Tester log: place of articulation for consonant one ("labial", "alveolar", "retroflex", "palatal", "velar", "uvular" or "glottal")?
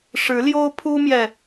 retroflex